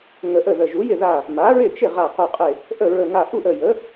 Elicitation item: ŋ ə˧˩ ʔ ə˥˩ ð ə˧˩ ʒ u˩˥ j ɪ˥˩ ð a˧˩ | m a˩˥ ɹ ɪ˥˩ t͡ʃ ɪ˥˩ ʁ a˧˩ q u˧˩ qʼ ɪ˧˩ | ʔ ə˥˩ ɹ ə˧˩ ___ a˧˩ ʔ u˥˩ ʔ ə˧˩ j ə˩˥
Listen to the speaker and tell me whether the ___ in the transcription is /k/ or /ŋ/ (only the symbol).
ŋ